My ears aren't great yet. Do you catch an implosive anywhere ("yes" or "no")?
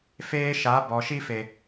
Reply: no